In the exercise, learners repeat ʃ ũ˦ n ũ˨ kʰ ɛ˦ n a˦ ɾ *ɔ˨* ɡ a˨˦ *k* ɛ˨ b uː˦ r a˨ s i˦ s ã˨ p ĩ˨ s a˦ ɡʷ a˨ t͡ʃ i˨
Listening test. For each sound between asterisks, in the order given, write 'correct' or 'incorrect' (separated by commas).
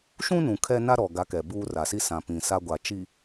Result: correct, correct